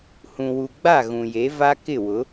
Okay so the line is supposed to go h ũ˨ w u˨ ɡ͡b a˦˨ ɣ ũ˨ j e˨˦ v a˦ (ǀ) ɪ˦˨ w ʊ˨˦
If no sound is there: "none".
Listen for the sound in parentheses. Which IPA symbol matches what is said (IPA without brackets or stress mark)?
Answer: k